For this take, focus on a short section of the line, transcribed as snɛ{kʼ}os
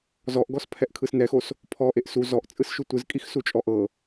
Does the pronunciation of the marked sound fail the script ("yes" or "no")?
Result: yes